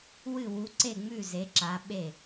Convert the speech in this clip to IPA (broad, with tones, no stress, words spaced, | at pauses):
wɨ˥˨wu˧˥ǀe˥˨ŋ͡mʉ˥˨ ze˧˥ǁa˧˥ɓe˥˨